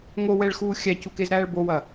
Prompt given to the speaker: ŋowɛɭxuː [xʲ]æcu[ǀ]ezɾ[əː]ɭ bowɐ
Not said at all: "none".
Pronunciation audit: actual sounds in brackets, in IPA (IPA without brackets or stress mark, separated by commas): xʲ, k, æː